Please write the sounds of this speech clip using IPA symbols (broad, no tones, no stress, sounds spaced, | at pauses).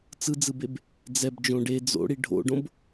t͡s ɯ d͡z ɯ b e b | d͡z ɛ b d͡ʒ õ ɖ e d͡z o̰ ɽ i ɖʱ o̰ ɖ õ b